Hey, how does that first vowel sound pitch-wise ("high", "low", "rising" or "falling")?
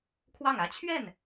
falling